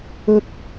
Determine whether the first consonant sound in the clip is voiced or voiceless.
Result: voiceless